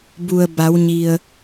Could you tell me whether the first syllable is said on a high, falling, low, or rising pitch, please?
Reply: low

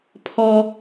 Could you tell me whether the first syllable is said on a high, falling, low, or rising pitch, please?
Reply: high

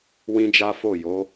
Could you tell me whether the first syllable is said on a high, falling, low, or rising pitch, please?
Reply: high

